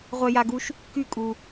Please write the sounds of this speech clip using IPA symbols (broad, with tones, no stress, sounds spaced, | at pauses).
ʁʷ ɛ˧ j a˧ ɡ u˧ ʃ | k y˥˧ kʼ u˧